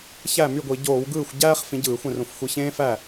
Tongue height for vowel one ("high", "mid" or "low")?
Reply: low